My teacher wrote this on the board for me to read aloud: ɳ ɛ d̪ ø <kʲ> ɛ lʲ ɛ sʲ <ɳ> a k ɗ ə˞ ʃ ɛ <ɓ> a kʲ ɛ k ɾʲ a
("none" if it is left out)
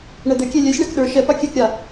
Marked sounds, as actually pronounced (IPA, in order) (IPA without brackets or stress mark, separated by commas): kʲ, ɳ, p